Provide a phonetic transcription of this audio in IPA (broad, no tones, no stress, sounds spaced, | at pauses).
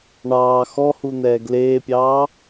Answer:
ɳ ɑː x ɔ h u n̪ ɛː ɡ l eː pʲ ɑː